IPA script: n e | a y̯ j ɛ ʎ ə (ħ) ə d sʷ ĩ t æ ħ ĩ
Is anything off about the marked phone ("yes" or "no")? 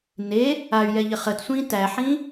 yes